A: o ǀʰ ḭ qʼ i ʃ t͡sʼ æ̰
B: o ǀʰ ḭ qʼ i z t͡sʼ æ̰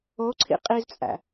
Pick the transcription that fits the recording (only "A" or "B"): B